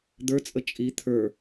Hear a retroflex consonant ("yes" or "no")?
no